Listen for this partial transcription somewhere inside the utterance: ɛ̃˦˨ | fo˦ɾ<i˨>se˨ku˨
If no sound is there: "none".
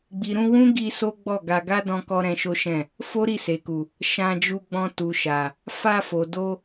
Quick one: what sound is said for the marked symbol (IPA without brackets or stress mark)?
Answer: i˦˨